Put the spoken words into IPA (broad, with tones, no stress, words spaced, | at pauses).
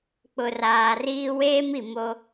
k͡pʊ˨raː˨riː˦ weː˦m i˨mo˦